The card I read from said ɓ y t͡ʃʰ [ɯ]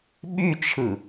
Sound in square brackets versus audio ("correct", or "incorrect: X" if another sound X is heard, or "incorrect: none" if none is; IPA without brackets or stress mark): correct